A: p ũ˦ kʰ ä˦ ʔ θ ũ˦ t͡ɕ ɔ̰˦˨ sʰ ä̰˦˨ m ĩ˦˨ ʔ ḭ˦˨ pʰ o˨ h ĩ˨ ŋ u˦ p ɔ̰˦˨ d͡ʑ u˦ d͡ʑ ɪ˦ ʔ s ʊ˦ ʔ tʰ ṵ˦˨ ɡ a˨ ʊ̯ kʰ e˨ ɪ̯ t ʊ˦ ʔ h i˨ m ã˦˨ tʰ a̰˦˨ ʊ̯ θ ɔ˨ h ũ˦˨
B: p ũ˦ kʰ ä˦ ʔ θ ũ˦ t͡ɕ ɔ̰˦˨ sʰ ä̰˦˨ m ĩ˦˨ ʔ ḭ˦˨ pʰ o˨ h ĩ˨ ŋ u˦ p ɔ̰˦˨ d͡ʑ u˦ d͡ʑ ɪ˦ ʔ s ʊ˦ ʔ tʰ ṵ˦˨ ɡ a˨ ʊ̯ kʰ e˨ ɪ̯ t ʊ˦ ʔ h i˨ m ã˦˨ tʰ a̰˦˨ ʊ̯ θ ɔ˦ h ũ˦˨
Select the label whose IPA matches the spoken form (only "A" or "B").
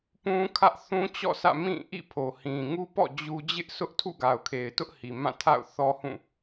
B